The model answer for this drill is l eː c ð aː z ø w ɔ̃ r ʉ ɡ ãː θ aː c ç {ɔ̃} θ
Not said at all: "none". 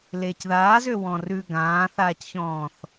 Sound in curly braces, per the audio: ɔ̃ː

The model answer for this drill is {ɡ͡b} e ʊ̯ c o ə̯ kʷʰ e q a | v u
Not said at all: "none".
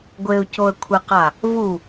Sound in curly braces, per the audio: ɡʷ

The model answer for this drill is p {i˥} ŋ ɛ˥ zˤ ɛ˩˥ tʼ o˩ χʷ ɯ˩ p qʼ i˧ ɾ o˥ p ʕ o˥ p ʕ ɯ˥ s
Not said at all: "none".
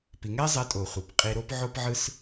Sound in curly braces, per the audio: i˩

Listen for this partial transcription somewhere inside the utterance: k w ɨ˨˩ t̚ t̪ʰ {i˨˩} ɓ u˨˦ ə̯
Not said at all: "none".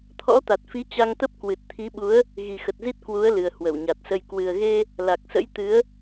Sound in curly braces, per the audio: i˨˦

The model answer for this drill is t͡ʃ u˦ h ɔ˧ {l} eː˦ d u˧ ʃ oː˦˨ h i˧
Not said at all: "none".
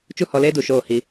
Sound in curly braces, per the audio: l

